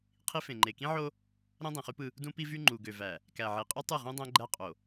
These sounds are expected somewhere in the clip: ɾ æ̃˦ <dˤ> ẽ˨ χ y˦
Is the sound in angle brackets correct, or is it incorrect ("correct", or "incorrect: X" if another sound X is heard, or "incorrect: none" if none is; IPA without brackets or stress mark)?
correct